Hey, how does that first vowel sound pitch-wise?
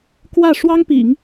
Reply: falling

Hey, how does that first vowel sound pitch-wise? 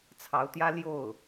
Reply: rising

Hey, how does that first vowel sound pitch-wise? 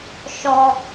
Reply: high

